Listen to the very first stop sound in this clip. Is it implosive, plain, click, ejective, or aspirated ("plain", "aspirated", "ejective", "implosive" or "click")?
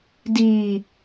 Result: plain